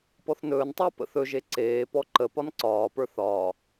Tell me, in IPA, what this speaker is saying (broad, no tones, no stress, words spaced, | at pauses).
pɔθnɵːntˤəː pə̰θɵʒe ǀeː pɔǃəpɒn ǀɒːpə˞ θɒː